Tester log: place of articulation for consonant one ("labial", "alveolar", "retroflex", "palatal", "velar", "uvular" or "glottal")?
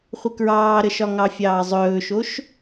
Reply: uvular